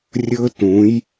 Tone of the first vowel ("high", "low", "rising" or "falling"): high